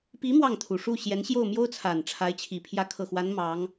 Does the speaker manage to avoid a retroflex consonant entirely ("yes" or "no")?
no